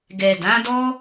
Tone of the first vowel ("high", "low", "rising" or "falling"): low